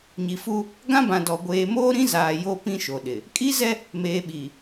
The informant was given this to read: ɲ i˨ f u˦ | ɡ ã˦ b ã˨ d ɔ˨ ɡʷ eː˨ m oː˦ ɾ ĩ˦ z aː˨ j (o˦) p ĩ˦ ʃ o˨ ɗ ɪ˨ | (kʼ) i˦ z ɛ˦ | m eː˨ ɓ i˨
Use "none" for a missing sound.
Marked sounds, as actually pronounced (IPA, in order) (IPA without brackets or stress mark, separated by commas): o˦, kʼ